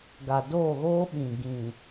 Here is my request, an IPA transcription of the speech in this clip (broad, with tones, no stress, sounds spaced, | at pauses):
ɡ a˨ d oː˦˨ ɣ oː˦ ɓ ĩ˨ ɡ ĩ˨